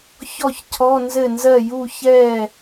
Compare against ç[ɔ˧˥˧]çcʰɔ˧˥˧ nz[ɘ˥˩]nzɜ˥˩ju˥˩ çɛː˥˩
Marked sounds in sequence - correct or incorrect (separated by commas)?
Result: incorrect, correct